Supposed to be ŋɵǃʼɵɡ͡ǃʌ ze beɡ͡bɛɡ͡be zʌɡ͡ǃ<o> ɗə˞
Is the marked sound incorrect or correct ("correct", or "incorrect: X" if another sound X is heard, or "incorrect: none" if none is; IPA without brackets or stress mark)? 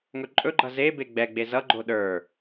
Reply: correct